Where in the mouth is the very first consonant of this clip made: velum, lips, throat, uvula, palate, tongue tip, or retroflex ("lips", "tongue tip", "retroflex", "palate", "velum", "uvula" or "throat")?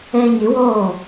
palate